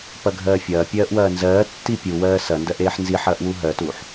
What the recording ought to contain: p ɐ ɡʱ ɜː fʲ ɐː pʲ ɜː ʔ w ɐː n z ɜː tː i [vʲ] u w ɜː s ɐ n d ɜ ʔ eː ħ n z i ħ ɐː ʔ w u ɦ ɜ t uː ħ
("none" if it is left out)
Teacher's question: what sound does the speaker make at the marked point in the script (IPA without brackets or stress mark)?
pʲ